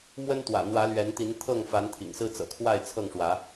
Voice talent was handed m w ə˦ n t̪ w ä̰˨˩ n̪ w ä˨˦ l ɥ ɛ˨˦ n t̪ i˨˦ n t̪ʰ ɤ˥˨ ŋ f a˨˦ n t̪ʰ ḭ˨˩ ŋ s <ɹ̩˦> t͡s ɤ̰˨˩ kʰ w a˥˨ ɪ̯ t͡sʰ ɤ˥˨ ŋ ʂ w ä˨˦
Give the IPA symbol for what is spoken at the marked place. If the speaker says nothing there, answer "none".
ɹ̩˦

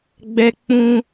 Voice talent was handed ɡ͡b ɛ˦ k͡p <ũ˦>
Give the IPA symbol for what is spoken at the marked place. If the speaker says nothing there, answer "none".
ũ˦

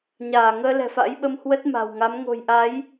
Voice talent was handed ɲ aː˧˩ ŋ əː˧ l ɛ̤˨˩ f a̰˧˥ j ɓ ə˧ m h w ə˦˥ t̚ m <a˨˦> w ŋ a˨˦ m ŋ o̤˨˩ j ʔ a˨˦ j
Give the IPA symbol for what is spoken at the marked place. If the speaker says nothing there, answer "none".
a̤˨˩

